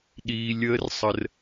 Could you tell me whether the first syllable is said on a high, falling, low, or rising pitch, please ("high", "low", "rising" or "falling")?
low